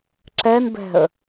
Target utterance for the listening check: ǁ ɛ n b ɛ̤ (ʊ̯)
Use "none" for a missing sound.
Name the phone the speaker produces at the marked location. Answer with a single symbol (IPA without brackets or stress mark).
ə̯